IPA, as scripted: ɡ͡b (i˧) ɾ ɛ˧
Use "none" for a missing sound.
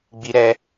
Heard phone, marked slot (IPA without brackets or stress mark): i˧